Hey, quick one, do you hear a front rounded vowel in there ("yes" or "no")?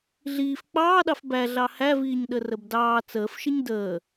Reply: no